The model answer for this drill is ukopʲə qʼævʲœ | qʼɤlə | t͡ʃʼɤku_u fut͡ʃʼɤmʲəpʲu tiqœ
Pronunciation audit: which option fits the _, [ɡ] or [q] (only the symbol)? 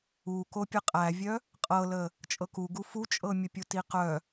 ɡ